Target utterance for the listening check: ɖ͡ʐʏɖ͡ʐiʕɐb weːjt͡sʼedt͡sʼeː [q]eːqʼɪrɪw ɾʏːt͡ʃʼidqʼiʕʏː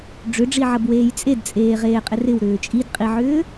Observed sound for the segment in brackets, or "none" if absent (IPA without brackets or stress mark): ʁ